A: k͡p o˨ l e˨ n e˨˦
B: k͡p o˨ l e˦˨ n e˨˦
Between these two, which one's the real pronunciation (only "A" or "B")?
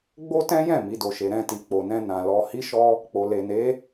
A